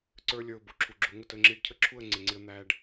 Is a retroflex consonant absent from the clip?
no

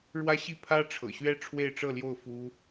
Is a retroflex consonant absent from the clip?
no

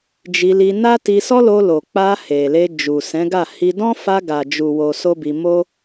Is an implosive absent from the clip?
yes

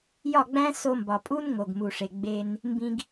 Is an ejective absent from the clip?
no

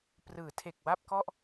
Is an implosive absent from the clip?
yes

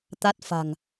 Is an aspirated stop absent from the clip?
yes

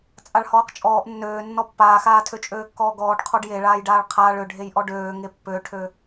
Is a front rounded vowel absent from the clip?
no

